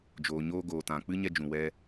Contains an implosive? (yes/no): no